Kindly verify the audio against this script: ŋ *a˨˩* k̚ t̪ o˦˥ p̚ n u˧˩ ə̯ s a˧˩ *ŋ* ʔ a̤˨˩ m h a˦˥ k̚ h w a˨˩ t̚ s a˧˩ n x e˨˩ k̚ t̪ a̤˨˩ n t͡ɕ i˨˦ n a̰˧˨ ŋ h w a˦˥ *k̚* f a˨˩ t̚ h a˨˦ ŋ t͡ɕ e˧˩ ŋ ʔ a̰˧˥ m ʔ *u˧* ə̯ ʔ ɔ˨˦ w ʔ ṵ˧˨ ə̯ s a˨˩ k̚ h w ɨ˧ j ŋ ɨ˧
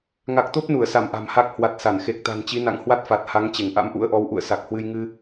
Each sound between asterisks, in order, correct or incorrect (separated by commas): correct, incorrect, incorrect, incorrect